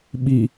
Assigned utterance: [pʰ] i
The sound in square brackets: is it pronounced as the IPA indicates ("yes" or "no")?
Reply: no